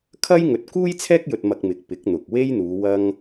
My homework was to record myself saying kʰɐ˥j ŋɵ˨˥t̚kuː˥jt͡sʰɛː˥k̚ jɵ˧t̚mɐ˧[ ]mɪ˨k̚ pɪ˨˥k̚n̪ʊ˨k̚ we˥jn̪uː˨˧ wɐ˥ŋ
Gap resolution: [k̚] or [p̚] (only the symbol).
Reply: k̚